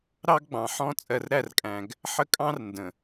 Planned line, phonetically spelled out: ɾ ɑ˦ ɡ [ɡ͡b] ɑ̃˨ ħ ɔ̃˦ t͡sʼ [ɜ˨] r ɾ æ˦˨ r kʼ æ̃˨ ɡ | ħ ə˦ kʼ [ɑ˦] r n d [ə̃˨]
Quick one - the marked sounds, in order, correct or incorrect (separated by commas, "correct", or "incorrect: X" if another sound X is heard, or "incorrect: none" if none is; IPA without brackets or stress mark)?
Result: correct, correct, incorrect: ɑ̃˦, correct